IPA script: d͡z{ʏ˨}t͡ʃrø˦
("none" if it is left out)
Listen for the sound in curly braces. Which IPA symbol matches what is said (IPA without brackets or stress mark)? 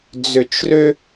ʏ˨